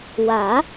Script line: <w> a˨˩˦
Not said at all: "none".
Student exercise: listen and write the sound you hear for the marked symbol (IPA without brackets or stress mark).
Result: w